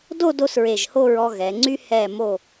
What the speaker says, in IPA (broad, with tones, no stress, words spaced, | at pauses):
do˥˧do˧s ɹe˧˩ʒho˥˧ɹɔ˧ ɣɛ˩˧ŋ͡ǀy˥ hɛ˧˩mo˧˩